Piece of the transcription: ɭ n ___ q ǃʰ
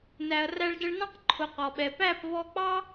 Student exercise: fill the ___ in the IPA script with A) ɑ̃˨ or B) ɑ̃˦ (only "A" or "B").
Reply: B